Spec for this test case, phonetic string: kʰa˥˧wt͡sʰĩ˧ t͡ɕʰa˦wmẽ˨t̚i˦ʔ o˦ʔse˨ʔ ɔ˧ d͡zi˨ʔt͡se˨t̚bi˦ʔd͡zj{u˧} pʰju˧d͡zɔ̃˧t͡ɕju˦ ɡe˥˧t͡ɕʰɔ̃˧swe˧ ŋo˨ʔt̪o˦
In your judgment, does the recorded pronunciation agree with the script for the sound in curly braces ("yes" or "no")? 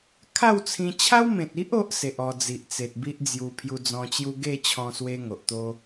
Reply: yes